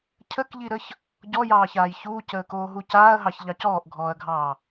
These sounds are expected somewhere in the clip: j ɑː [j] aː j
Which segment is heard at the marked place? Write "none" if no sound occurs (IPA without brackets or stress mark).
ç